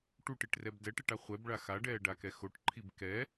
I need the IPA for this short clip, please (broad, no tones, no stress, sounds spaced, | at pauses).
ʈ u ʈ i ʈ r ɛ b d ɛ ʈ e ʈ a χʷ ɛ b ɭ a x a ɖ ɛː ɖ a k ɛ x o ʈ ǃʰ i b k ɛ